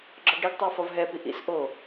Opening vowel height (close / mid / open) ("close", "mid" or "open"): open